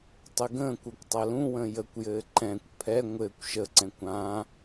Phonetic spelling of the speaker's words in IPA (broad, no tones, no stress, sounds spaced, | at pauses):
tˤ ɘ ɡ ə̃ː kʷ ə˞ kʷ tˤ a l ũ w ə̃ː j ə kʷ j ɘː ǃ ɛ̃ kʷ pʰ ɛ ŋʷ ɘː kʷ ʃ ə ǀ ɛ̃ kʷ ã